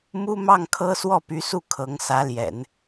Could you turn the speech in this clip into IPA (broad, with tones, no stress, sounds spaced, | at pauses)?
m u˥ m ɑ˥˩ ŋ kʰ ɤ˥ s w ɔ˥˩ p y˧˥ s u˥˩ kʰ ɤ˧˥ ŋ s ä˧˥ l j ɛ̰˨˩˦ n